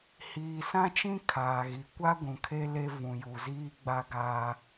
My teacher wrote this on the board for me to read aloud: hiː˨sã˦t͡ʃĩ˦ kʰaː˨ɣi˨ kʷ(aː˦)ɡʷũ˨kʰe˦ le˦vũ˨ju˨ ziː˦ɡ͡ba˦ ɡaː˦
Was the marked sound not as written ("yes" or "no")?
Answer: yes